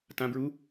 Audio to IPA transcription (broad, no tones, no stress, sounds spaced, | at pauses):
t ã b ɹ u